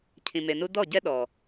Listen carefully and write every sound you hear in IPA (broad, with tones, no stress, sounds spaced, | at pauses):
cʰ ĩ˨ m e˨ n u˦ d ɔ˦˨ ɟ ɛ˦ ɗ ɔ˨